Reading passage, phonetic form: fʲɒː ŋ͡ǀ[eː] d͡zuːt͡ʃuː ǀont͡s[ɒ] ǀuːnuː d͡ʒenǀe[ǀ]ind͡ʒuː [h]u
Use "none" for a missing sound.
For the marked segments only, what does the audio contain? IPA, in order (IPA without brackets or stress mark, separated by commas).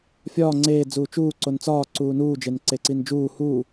eː, ɒː, ǀ, h